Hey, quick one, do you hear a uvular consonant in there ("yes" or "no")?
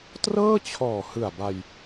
no